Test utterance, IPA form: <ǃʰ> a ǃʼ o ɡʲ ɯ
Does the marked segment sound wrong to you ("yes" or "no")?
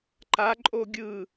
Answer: yes